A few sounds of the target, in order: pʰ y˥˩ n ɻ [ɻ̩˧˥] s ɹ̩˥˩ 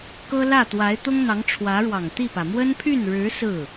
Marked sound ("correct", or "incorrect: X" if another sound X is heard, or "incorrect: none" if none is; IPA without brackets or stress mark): correct